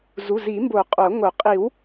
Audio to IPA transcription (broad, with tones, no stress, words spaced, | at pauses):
zu˩˧˩zi˨˩˦mbo˨˩˦ qʼo˨˩˦ŋo˨˩˦ qʼi˨˩˦w